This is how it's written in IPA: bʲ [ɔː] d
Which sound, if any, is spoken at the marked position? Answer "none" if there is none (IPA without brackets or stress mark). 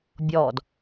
ɔː